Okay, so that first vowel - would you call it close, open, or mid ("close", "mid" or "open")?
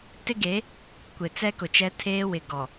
close